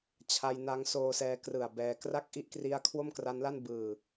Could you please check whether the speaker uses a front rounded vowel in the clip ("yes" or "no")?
no